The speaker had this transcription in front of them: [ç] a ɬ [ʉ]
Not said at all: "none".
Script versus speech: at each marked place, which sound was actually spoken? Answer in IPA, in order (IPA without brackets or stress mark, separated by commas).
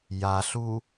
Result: j, u